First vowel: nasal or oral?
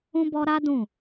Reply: nasal